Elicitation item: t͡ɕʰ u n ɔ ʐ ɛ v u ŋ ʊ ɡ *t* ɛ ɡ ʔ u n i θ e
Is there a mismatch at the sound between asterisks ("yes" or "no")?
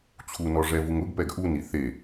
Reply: yes